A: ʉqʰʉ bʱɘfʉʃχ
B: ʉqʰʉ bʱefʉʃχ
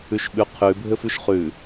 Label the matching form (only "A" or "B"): A